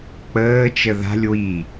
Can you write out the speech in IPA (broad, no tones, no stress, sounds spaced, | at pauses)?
k͡p əː t͡ʃ ə ð a̤ lʲ w i